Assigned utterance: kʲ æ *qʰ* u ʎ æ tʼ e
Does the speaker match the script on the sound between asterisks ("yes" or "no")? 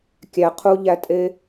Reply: yes